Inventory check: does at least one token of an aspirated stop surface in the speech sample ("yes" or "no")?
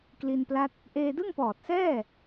no